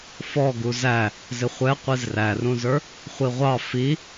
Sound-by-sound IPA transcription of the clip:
fɔ ɡuzæ | zɪχʷɛ qʷizrærũzə˞ | χʷiʁʷɑ fi

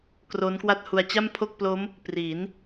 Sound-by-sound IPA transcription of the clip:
kro˦˥nkwa˥˩t̚hu˧a̯ t͡ɕa˥˩mpʰo˥˩k̚plo˦˥m | pri˩˦n

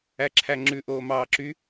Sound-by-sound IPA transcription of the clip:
æǁʰæŋ͡ǁʉ ʔoːmɑːǁy

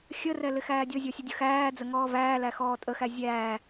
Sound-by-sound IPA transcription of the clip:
xʲərɛ lɪxæːdʲɔzʲɔ sʲʊdʲʊxæːd͡zə ŋɔːvæːlæ xɔːtʼəxæ zʲæː

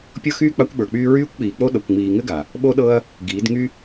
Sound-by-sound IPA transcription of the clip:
pʲɤ˦xyː˦ k͡pa˦kʷɓə˞˨k͡pyː˦ ɹyː˦kʷk͡piː˨k͡po˦ ɗɤ˨kʷŋ͡miː˨ŋɘ˦ ɡa˨ | ɓo˦ɗɤ˦ɐ̯ | ɡiː˨˦d ŋy˦

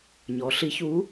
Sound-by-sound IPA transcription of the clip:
ɲɔ˩˧ɬi˧˥çuː˧˥

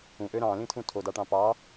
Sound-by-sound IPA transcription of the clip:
ũʔø ɾɑ̃lĩtʰũ tʰodɑʈɑ̃ pɑ

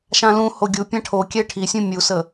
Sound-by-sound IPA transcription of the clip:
ʃãlũho ɡʲu pʲãʈʰokʲɛ ʈʰisʲũ mʲusə

